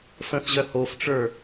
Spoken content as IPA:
f ə̃ θ ʑ œ h o f ʈ͡ʂ ə˞

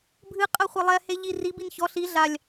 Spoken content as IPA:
bʱ ɨ qʼ ɐ χʷ ɐ lˠ ɛ h e ʎ i r i b i n ç ɔ ɬ i ɮ a lʲ

